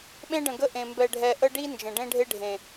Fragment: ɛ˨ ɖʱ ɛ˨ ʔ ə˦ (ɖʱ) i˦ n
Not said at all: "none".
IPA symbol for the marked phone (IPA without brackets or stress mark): ɖ